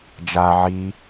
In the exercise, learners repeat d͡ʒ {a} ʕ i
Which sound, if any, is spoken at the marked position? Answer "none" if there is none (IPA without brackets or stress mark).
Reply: a